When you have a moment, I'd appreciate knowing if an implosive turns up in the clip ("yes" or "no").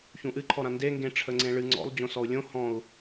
no